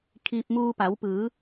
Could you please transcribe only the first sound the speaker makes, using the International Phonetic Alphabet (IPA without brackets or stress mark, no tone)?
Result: kʰ